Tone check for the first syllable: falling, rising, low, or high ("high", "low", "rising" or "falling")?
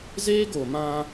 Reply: high